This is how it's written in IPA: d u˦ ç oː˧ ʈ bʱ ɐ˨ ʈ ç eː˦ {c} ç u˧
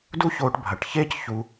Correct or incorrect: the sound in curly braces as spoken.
correct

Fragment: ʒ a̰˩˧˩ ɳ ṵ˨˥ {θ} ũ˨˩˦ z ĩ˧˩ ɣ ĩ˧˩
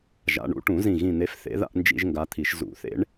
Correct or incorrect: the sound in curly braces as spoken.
incorrect: ʈ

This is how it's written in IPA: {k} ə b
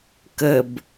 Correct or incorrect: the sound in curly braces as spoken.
correct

